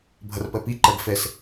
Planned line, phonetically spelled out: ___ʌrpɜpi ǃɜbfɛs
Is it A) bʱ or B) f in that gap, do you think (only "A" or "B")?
A